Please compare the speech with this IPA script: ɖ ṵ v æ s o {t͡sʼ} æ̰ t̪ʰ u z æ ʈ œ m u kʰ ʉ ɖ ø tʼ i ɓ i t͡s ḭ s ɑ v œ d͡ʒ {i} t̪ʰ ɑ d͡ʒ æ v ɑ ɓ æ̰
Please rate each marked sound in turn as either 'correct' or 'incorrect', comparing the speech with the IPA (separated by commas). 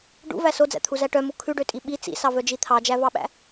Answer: incorrect, correct